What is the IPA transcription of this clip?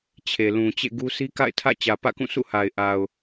t͡ɕʰ e˨ l ũ˨ t͡ɕ ḛ˦˨ ɡ u˦ sʰ i˦ k a̰˦˨ ɪ̯ tʰ ä̰˦˨ t͡ɕ ä˨ p ä̰˦˨ k ũ˦˨ sʰ ṵ˦˨ h a˨ ɪ̯ ʔ a˨ ʊ̯

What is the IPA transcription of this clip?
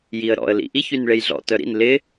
j i ə̯ ɾ ɔ̰ ə̯ l ḭ ʔ i ç y n ɭ e j ɮ ɔ̰ t œ ɾ ḭ n l ɪ

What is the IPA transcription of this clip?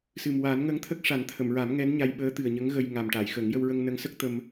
s ɨ˨˩ m w aː˨˩˦ n ŋ ə˧˥ ŋ t̪ʰ ə˦˥ k̚ ʂ a˨˩˦ n t̪ʰ ə˨˩˨ m ɹ a˨˩˦ m ŋ ɛ˧˥ n ɲ a˧ j ɓ əː˧˥ t̪ ɨ˨˩ ə̯ ɲ ə˧˥ ŋ ɣ ə˧ j ŋ a˨˩ m ʈ a˨˩˨ j x ə˨˩˦ ŋ j ə˧ w ɹ ə˧ ŋ n ə˧˥ ŋ s ə˦˥ k̚ t̪ ə˧ m

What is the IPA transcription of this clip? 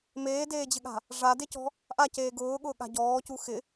m eː d eː d͡ʑ ɪ ɠ a̤ | ʐ a d e c ɔ̤ | ʔ a c eː ɡ ʊː ɠ ʊː ɠ a̤ ɟ ɔː c u x ɪ

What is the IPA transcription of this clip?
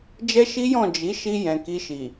d͡ʒ ɛ˦ ʃ i˦ j ɔ̃˦˨ d͡ʒ i˨˦ ʃ i˧ j ɛ̃˨ k i˧ ʃ i˨

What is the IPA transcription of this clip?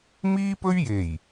m iː˥ p ɵ˥ ɥ j e˨˩ j

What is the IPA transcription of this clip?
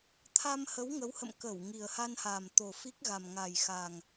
t̪ʰ a˧ m h ə˨˦ w ŋ ə˨˦ w h ə̰˧˨ m k ə˧˩ w ŋ i˨˩ ə̯ h a˧ n h a˨˩ m t̪ o˨˩ f i˦˥ k̚ ɣ a˨˩ m ŋ a˨˩ j x a˨˩ ŋ

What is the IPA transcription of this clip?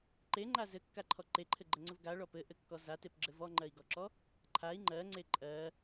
ǃ e ŋ͡ǃ a z ɘ kː a ǃʰ ɔ ǃ e ǃʰ ɘ ɡ͡ǃ ɘ ŋ͡ǀ ɘ v ɡ a ɭ ɔ p ɘ ʔ ɘ kː ɔ z a t e p ɡ͡ǁ ɘ v ɔ ŋ͡ǃ ɜ i̯ ɡ ɔ ǁ ɔ | ǃʰ a i̯ ŋ͡ǃ ɜ ŋ͡ǀ e ǃʼ ɜ

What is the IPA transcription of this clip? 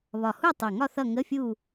β ɒ˨˩ h u˦˨ tˤ ʌ˨˩ ŋ ɒ˦˨ θ ʌ˦˨ ŋ ə˧˥˧ fʲ u˦˨

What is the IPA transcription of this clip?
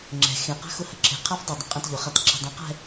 ŋ͡ǁ ɛ̤ x ẽ q a̤ x ʊ h ə ǁʰ e̤ qʰ a f dˤ ʊ dˤ ə̃ qʼ ɛ̃ t ʎ ʊ χ a t ǁʰ e̤ dˤ ũ q ɛ̤

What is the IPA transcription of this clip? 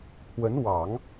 t̪ʰ w ə˧˥ n w ɑ˨˩˦ ŋ

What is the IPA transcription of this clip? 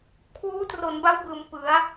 kʰ w uː˦˥ t r o˩˦ n b a˦˥ w b ɯː˩˦ m p ɯ˩˦ a̯

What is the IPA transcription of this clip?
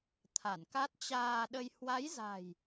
t̪ʰ a˧˩ n k a˦˥ t̚ t͡ɕ aː˧ ɗ ə˧ j h w a˨˦ j z a̤˨˩ j

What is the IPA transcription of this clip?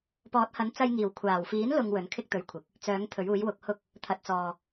p ɔː˨˥ t̚ h ɐ˨˥ n t͡s ɐ˧ j ŋ iː˨˩ w kʷʰ aː˨˩ w f iː˨˥ n l ʊ˨ ŋ w ɵ˨˥ n kʰ ɪ˥ k̚ t̪ ɵ˨˧ ɥ kʷʰ ɪ˨ k̚ | t͡s œː˨˥ ŋ t̪ʰ ɵ˨˥ ɥ uː˨˥ j w ʊ˨˥ k̚ h ʊ˥ k̚ | t̪ʰ ɐ˨ t̚ t͡s ɔː˨

